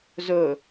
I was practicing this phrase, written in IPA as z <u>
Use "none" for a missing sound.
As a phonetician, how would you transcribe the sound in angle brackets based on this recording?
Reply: o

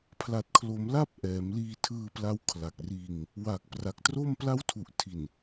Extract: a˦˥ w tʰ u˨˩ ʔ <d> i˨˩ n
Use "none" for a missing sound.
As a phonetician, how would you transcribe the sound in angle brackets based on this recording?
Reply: tʰ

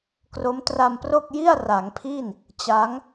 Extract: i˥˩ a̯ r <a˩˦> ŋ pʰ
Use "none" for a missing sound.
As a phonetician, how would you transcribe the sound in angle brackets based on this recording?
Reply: a˩˦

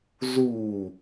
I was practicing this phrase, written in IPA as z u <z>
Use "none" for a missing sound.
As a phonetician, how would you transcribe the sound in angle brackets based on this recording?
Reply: none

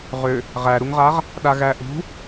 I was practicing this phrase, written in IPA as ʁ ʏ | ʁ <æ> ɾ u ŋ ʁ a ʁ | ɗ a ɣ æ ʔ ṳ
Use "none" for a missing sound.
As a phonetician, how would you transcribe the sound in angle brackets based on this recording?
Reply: æ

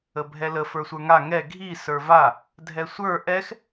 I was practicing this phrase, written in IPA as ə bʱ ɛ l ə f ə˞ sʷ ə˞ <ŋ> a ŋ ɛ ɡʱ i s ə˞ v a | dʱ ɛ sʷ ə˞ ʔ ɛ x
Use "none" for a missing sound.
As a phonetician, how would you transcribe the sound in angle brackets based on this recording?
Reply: ŋ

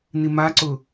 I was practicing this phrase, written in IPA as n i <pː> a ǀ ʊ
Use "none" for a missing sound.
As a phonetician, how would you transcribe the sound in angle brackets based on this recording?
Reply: m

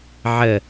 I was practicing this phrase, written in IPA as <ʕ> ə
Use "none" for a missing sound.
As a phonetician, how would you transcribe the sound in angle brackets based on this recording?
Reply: ʕ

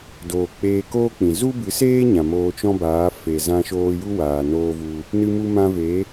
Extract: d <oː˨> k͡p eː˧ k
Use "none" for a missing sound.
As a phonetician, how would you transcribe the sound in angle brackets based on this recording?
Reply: oː˨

